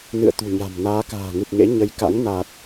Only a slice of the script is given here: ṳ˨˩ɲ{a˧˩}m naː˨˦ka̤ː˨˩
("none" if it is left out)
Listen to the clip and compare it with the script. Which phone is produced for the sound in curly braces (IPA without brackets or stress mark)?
a̤˨˩